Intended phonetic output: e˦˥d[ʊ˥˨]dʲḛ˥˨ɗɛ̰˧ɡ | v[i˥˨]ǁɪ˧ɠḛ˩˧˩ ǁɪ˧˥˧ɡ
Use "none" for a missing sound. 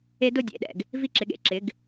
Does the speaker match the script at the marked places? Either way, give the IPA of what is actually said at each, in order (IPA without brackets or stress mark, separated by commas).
ʊ˥˨, i˥˨